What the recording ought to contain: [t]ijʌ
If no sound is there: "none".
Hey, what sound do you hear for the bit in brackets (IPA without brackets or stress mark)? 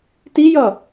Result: t